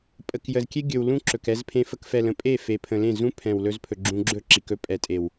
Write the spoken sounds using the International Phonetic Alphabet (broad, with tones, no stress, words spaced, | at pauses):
pʼə˨kjə˨zkʲe˦ ɡʲɵ˨w lũ˦ǁɵ˨k ɛ˧z pʰẽ˧fə˧kfɛ˨lə̃˨ pʼe˦˨fe˨pʰə̃˨lẽ˦˨ zũ˦pʰɛ̃˨wlɵ˧zpʰɵ˨ ɡ͡ǁũ˧ɡ͡ǁɵ˦ ǁi˨kɵ˧ pʼɛ˨tʼe˨w